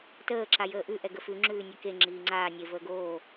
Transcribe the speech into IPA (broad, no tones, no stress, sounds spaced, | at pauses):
t əː ǁ a j əː ʔ ʉ ʔ ɛ ɡ ə f ʉ ŋ͡ǁ ʉː nʲ e k e ŋ͡ǁ iː ŋ͡ǀ aː nʲ e v əː ɡ oː